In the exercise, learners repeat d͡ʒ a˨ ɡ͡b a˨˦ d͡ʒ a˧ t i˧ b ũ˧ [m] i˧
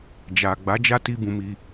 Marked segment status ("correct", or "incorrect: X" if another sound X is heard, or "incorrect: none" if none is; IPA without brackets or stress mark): correct